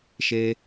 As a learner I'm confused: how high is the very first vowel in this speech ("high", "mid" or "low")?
mid